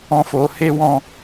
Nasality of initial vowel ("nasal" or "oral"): nasal